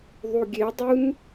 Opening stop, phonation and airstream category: plain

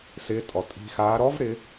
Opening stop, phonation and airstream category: ejective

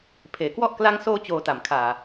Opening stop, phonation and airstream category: aspirated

